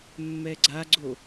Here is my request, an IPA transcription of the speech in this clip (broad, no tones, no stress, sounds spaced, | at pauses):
mː ɛ ɡ͡ǀ a ɡ͡ǀ o